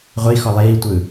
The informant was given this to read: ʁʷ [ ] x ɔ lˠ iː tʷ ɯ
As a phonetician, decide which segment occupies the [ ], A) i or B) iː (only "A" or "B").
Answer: A